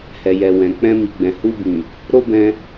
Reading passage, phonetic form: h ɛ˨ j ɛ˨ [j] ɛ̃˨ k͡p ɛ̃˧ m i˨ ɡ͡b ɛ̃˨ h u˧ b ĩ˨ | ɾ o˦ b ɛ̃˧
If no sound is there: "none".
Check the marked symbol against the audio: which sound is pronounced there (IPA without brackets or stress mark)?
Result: w